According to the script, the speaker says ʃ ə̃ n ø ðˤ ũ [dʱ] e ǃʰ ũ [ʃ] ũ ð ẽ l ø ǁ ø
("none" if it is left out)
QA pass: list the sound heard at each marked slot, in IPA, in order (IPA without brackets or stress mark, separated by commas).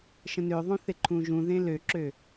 θ, ʒ